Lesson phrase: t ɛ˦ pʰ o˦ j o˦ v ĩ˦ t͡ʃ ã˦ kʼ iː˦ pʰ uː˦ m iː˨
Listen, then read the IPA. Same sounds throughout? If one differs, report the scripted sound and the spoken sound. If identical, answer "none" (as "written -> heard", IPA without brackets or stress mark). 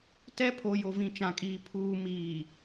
none